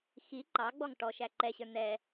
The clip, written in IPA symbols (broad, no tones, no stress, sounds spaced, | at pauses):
x i ǃ ɑ ɡ͡b ɔ ŋ ʈ ɔ ʃ æ ǃ ɛ ɕ ə˞ n̪ ɛ